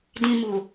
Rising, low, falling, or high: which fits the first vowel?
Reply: low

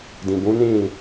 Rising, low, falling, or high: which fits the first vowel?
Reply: low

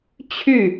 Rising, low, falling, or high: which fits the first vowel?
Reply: falling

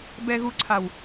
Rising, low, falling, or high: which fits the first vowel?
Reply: low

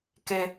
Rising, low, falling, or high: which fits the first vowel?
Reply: high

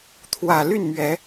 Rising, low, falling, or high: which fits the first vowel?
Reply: low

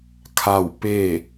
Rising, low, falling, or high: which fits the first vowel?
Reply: falling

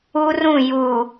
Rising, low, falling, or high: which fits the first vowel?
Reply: high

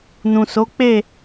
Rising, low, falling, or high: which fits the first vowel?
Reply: low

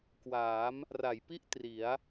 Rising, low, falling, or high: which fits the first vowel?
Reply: rising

